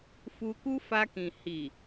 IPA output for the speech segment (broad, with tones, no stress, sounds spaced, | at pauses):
f u˧ k u˦ f a˧ k ĩ˨ h i˨